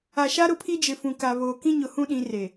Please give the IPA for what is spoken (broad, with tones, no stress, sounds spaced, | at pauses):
a˨ ʃ a˦ ɾ ʊ˦˨ pʰ i˦ d͡ʒ ɪ˨ f ũ˨ k a˨ β oː˨ k ĩ˦ ɲ ʊ˨ h ũ˦ ɗ ĩ˨˦ r e˨